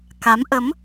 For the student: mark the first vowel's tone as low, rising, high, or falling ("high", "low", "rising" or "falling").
rising